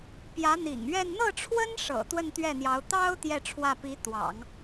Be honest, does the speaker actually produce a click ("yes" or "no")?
no